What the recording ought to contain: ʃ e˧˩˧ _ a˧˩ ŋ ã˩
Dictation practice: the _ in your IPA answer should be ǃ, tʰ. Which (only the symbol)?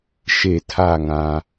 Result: tʰ